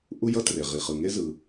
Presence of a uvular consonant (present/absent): present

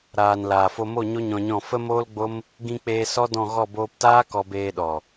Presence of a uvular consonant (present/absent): absent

